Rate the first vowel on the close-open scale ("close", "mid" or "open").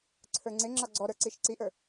mid